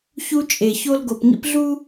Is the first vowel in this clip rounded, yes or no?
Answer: yes